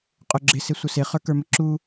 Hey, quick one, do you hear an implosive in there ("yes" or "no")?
no